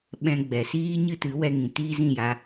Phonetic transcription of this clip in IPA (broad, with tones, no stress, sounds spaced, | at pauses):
ɓ ɛ̃˧ ɡ͡b ɛ˨ s iː˦ ɲ ɨ˦ t ɨ˨˦ w ɛ˧ ŋ ĩ˨ t iː˦ z ĩ˦˨ j a˧